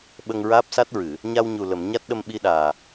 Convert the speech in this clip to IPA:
ɓ ə˧ ŋ ɹ aː˦˥ p̚ s a˦˥ t̚ ɹ ɨ˨˩˨ | ɲ a˧ w ɲ u˨˩ l ə˨˩˨ m ɲ a˦˥ t̚ ɗ ə˧ m ɓ i˧ ɗ aː˨˩

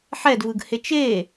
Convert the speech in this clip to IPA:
ħ ɛ d v ɯ ɡ h e t͡ʃ e

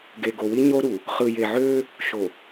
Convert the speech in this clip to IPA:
ɡ e˨ ɡ o˨ w i˦ ɲ o˦ ɾ u˨ | χ ɯ˨ j e˨ ʕ øː˦ | ʃ o˨

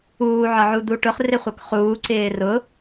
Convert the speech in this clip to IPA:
uː ʕ ɒ ʕ u d̪ u ʈ ʊ χ r ɪ χʷ ʌ k χ uː ǀ ɪː r ʊ

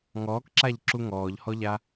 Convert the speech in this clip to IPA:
ŋ ɔː k ǁ a ʎ ǁ u ŋ ɔː ʎ h ɔ ʎ a

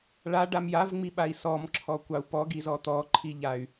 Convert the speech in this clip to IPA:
ɭ a ɖ a m j a v ŋ͡m i ɓ a i̯ s ɔ m ǁʰ ɔ kʷ ɑ u̯ p ɔ ɡ i z ɔ t̪ ɔ ǃʰ i ʎ a y̯

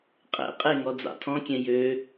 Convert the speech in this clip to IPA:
qʼ ɛ̰ qʼ e ŋ ɔ d͡z ɑ̰ tʰ ɔ̃ kʲ ɛ̃ j ø

